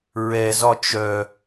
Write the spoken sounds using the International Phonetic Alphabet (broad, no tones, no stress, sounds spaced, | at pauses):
ɹ ɛ z ɒ t͡ʃ œ